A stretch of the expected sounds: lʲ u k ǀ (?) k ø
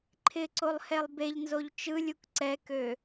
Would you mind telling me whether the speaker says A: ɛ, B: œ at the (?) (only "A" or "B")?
A